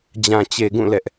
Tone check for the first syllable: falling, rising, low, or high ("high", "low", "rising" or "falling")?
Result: low